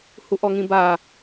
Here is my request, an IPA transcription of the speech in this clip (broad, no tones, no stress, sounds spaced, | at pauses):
h u ʔ ɔ ŋ ĩ b a